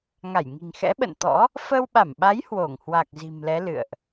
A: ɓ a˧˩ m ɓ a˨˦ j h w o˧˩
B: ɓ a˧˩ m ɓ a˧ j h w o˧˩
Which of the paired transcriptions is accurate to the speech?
A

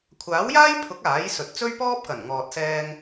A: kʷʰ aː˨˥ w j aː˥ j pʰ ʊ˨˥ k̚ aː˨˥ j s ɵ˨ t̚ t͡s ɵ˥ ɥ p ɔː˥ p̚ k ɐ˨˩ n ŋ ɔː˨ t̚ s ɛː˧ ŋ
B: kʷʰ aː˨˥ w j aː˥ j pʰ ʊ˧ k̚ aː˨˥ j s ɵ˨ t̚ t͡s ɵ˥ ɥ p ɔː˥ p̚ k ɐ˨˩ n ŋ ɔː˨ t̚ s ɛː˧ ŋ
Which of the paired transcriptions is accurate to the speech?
A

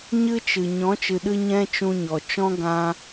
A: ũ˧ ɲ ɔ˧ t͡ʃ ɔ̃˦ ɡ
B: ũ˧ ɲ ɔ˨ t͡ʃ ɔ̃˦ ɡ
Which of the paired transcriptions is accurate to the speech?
B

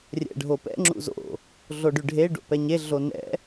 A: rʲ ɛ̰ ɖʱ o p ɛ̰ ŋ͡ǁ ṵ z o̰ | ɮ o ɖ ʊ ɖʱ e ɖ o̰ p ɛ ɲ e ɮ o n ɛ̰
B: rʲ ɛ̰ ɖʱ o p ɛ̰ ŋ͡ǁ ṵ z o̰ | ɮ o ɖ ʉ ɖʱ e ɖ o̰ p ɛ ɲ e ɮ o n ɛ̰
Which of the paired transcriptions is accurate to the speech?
B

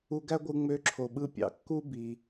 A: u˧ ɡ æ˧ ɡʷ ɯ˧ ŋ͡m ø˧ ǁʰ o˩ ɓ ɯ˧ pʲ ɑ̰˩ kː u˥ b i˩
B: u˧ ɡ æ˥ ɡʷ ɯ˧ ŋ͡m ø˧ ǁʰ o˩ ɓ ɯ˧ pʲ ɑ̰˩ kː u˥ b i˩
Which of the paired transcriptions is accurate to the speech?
B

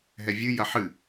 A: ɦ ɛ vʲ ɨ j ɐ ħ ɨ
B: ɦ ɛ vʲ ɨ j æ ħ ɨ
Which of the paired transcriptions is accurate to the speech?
A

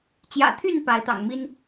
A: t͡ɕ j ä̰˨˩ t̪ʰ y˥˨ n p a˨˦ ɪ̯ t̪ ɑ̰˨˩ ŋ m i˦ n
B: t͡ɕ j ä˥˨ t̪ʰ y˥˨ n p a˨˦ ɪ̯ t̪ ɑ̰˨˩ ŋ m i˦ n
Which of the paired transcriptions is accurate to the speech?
A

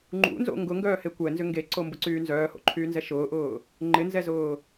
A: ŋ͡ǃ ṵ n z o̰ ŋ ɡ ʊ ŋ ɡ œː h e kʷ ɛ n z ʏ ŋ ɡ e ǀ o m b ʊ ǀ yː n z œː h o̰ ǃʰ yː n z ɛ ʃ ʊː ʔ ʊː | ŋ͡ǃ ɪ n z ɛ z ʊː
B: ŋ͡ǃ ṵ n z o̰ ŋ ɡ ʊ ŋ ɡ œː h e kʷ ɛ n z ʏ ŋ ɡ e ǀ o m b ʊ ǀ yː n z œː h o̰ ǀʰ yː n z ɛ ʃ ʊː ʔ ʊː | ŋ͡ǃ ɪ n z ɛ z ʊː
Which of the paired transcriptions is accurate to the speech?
A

